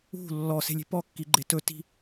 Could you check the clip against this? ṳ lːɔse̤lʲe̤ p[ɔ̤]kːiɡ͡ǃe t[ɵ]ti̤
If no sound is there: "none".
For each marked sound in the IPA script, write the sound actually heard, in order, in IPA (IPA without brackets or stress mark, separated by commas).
ɔ, ɵ